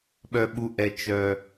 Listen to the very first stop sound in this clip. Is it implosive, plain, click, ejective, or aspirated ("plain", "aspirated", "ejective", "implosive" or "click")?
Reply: implosive